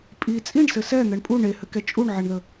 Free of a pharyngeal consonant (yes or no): no